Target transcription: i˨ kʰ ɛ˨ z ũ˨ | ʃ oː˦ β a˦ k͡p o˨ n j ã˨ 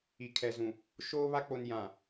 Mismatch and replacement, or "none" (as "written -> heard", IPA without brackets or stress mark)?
none